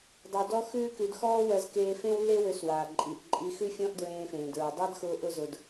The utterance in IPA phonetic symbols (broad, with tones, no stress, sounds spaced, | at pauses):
dˤ ʉ˧ d ɔ˥ x ʉː˥ k ʉ˧ d x ɔː˥ w ɜ˧ z k eː˧ f ẽ˥ w lː e˥ w ø˧ s w aː˩ ǃʼ i˩ ʔ ǃʼ i˧ x ʉ˥ fʲ ɔ̃˥ ʔ d ɹ ẽː˧ f ẽː˩ d ɹ ʉ˩ dˤ a˥ d x ʊː˧ ʔ ʊ˧ z ʊ˩ d